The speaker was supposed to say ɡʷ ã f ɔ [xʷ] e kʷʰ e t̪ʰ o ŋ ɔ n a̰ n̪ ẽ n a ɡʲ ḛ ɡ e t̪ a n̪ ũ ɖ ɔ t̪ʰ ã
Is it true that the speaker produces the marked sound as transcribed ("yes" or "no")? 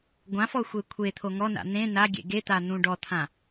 yes